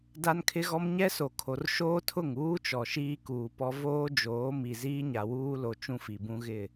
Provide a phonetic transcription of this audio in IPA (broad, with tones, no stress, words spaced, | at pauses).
da˦nkʰɪ˦ɣɔ˦m ɲɛ˦so˨kʰo˨r ʃoː˦tʰʊ˦˨ŋ uː˦t͡ʃɔ˨ ʃiː˦kuː˨pɔ˦ voː˦d͡ʒoː˨˦mi˨ ziː˦ɲa˨wuː˦lo˨ t͡ʃũ˦fi˨bũ˦ɣɪ˦˨